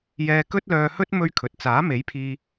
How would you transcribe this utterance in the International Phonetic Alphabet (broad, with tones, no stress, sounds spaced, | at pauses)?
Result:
j ɛː˧ k ɵ˥ t̚ l œː˧ h ɵ˥ t̚ m ɵ˥ ɥ kʰ ɵ˨ t̚ t͡s aː˨˥ m e˨˥ j pʰ iː˧